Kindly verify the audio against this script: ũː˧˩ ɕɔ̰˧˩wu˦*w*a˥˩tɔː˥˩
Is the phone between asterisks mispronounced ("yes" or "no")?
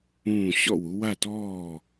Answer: no